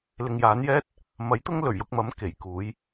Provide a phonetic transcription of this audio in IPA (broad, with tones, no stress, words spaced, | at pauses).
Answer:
lɪ˨ŋjaː˨˥njɛː˥t̚ | mɐ˨˥jt̪ʊ˥ŋ lɵ˨˩ɥjʊ˧k̚mɐ˨˥m ke˨˩jkuː˨˥j